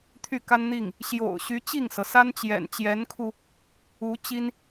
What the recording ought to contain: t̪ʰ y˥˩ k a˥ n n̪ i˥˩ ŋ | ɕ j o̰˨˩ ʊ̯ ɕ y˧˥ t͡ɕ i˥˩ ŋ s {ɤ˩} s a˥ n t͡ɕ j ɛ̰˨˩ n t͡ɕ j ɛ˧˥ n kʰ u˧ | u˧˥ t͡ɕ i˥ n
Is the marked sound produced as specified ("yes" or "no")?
yes